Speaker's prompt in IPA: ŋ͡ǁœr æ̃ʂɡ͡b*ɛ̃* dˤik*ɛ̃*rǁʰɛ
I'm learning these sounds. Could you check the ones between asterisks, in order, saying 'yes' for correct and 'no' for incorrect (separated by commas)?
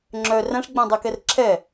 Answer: yes, no